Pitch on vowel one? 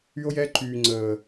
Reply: high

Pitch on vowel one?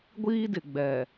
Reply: high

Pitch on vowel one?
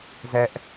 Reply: high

